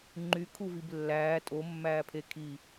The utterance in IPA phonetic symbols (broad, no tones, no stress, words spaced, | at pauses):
ŋ͡ǃykʰuvib lːæː tʼomːæːpʰe kʰi